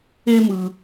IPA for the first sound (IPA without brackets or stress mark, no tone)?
e